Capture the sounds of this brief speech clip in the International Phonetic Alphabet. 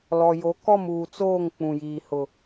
l ɔ˨ j o˨˦ k ɔ˦˨ m uː˨ t͡s oː˦˨ ŋ k͡p ũ˨ j iː˨ h ʊ˨

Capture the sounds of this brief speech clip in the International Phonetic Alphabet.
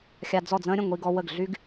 xʲ a˧ d͡z ɔ˥˩ d͡z ə̃ː˥ ɾʲ ə̃˥˩ ŋʷ i˧ ɡ ɔ˧ w ə˥˩ ɡ ɮ y˥ ɡ

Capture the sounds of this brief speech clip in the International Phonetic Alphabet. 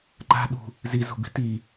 ǃ a̤ ɗ ṳ | z i z ṳ b i̤ t i

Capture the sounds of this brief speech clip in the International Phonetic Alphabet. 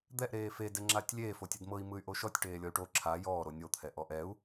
d̪ ɛ ʔ ɾ eː f e d ɛ ŋ͡ǁ aː tʲ lʲ eː f o tʲ e d m ɤ i̯ m ɯ y̯ ʔ o ʃ ɔ tʲ ʈ eː lʲ ɔ y̯ ʈ o ǁʰ a j ɔː ɾ o nʲ o t̪ʰ ɛ ʔ ɔ ʔ ɛ u̯

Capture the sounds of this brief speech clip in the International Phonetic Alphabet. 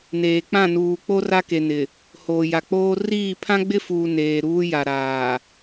n eː˨ k͡p ã˦˨ n uː˨ k͡p o˦ r a˦ k e˨ n ɪ˨ | h oː˨ j a˨ k͡p oː˦ r iː˦˨ pʰ ã˦ ɡ͡b ɪ˦ f uː˨ n eː˨ ɾ uː˦ j a˨ ɾ aː˨

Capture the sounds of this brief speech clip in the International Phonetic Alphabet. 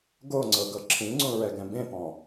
ɡ o ŋ͡ǀ ɤ ɡ ɤ ǁʰ ĩ ŋ͡ǀ ũ ɹ ɛ ɡ ɛ̃ b ẽ p ɔ̃

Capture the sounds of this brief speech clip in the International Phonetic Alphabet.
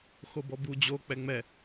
x o b ɔ b u d͡ʑ o k͡p ɛ ŋ͡m ɛ

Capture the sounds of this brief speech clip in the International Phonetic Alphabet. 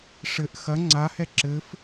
ʂ ɘ ʔ x ɐ ŋ͡ǀ a h ɛ ǁ ɘ f

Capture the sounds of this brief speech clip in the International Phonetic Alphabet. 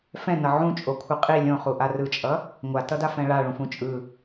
f ɛ̃ n ʌ ʕ ũ t͡ʃʼ o kʷʰ ɯ qʼ i lʲ õ χ u ʔ a r ɯ t͡ʃʼ ʌ | ŋʷ a t ʌ d a f ɛ̃ ɭ a ɭ ũ f ũ t͡ʃʼ ɯ

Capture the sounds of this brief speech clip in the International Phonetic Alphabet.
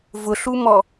v ʊ ɬ u m ɔ

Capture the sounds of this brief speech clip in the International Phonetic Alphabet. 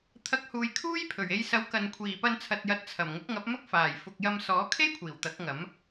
t̪ʰ ɐ˨˥ k̚ h uː˨ j kʰ uː˥ j pʰ ɵ˨˩ ɥ e˧ j s ɐ˨˥ w k ɐ˨ n kʷʰ iː˨˩ p ɐ˧ n t͡sʰ ɐ˨ t̚ j ɐ˨˥ t̚ t͡sʰ ɐ˨˩ m ŋ ʊ˨˥ k̚ ŋ ɐ˨˥ p̚ m ɐ˥ k̚ f aː˨˩ j f ʊ˨ k̚ j ɐ˧ m s ɔː˨˥ kʰ e˥ j kʷʰ iː˨˩ w t̪ ɐ˨˥ k̚ ŋ ɐ˨˥ m

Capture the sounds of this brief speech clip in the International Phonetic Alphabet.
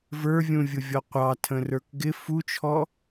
v ə˞ vʲ ũ vʲ ʊ vʲ ɔ qʷ ɑ tʰ ə̃ r ə˞ k ɡ ɪ f u t͡ʃʰ ɔ

